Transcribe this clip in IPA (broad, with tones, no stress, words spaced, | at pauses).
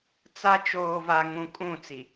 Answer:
t͡sa˦ t͡ʃoː˨va˨ŋũ˨ kʼũ˦˨t͡si˨